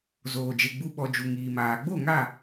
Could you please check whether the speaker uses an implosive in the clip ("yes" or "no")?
yes